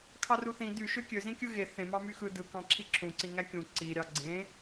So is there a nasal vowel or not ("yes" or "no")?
yes